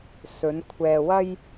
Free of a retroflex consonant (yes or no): yes